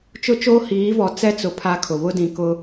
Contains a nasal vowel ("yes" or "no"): yes